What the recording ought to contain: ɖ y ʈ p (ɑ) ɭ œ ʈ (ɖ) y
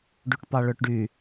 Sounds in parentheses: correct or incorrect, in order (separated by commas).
correct, correct